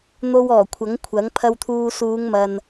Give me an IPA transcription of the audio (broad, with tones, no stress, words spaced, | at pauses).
n̪o˧wɔː˨˩kʷʰɐ˨˥ŋkʷʰɐ˨˥ŋ pʰɐ˧wt̪ʰuː˧ suː˨˧ŋmɐ˨n